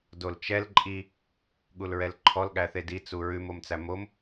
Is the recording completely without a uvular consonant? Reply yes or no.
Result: yes